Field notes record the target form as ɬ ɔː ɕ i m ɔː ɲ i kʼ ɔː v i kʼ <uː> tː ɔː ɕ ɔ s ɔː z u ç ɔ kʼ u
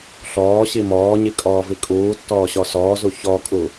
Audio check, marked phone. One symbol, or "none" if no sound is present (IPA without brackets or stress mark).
uː